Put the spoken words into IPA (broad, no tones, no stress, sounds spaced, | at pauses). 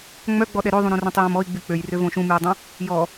ŋ͡m œ ɡ͡b ɔ ɗ ɛ ɾ ø ðˤ ũ ɾ õ r œ̃ tˤ j õ m ɔ i̯ ɡ͡b y k͡p ø j r ø v õ ʃ ũ m y u̯ dˤ œ̃ | j ɔ